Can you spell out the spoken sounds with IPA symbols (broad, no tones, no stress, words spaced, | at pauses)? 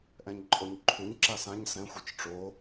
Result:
ʔɛ̃ɲǃʼoɲǃʰuɲ ǁasãɲ sɛ̃ xʷɛt͡ʃʈ͡ʂo